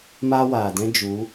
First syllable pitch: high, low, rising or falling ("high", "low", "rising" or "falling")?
high